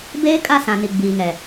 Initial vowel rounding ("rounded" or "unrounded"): unrounded